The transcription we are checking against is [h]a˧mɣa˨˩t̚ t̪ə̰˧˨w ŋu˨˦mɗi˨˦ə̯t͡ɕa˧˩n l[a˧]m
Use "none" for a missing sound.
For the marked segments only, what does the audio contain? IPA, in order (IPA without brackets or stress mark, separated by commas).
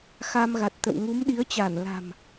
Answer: x, a̤˨˩